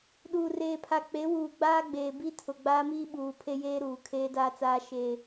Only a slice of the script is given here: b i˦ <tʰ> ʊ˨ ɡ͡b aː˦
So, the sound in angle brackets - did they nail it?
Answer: yes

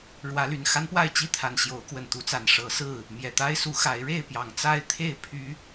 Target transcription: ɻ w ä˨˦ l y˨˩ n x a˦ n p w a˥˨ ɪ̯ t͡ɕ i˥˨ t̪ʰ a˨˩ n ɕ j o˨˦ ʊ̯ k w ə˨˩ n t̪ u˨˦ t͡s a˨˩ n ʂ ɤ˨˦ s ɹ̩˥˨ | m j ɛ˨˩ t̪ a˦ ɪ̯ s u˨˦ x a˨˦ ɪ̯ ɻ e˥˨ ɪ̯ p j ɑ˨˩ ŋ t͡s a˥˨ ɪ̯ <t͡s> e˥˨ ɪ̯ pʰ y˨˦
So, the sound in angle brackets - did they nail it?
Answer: no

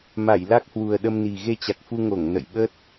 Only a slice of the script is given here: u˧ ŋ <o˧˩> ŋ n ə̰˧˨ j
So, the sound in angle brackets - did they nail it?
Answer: yes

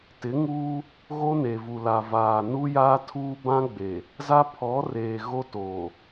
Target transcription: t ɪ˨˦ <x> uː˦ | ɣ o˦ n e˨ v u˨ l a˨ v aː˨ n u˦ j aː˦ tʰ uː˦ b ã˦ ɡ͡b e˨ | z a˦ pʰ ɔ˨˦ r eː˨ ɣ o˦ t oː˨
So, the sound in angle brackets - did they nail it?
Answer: no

